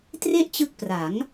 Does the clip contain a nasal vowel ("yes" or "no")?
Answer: no